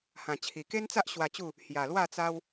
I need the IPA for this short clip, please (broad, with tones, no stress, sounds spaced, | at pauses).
h ã˨˩ t͡ɕʰ i˨˩ k e˦ n t͡s a˦ ʔ ɕ w a˧ t͡ɕ u˥˧ | h j a˨˩ l w a˥˧ t͡s a˦ w